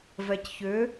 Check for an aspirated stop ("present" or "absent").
absent